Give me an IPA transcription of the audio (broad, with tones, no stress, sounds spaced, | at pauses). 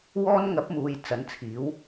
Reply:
w ɔː˥ n ŋ ɐ˨˥ p̚ m uː˨ j t͡s ɐ˨˥ n t͡sʰ iː˨˥ w